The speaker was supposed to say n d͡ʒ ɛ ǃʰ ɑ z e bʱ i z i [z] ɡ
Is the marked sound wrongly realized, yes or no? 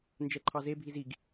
yes